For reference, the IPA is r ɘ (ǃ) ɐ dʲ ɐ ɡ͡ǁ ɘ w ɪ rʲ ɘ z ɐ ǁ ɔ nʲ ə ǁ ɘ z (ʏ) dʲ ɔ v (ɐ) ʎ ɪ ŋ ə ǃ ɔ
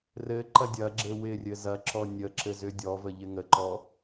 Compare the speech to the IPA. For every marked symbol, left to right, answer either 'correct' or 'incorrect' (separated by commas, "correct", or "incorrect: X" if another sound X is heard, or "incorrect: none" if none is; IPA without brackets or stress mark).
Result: correct, correct, incorrect: ə